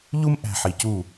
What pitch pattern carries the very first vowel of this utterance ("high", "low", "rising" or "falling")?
high